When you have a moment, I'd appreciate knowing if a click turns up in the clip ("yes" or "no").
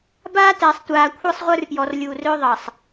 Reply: no